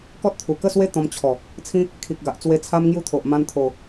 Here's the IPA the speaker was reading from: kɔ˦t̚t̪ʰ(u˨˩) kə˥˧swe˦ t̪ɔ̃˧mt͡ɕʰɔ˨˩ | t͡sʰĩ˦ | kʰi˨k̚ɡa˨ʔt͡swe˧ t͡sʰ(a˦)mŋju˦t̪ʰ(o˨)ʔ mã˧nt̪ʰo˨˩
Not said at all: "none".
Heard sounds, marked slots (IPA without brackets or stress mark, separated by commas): u˨˩, a˦, o˨